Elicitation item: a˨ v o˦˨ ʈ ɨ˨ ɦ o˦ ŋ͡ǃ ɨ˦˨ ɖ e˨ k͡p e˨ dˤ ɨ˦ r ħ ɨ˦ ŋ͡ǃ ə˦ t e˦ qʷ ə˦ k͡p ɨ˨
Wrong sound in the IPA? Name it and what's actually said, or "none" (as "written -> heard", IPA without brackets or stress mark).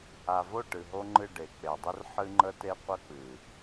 none